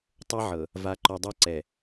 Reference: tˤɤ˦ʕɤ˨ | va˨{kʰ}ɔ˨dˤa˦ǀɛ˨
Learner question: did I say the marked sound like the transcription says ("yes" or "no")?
no